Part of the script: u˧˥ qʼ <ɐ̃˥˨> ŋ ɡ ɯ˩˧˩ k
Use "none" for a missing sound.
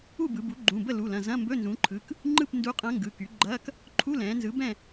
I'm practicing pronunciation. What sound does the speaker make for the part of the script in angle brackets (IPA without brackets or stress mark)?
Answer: ɐ̃˧˥